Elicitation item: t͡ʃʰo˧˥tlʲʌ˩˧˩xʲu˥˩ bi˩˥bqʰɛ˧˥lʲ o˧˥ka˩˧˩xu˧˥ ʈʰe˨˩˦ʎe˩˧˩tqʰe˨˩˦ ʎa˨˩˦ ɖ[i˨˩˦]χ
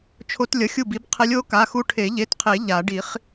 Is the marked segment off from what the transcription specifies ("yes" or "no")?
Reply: no